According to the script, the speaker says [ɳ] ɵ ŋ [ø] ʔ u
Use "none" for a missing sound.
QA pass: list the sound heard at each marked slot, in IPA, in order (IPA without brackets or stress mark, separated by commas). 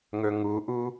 ŋ, u